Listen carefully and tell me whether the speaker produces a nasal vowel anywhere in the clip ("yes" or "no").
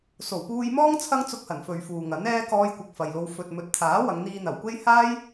no